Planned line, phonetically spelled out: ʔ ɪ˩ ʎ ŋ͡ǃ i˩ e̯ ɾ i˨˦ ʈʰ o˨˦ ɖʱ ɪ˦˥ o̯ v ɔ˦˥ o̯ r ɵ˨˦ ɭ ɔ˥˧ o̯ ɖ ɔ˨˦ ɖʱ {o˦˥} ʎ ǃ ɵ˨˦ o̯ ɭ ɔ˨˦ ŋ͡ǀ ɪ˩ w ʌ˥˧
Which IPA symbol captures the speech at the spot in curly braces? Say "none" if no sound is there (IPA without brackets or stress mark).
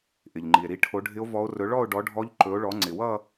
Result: ɔ˦˥